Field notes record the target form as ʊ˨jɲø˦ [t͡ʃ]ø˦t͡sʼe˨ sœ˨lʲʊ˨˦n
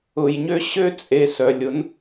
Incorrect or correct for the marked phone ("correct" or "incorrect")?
incorrect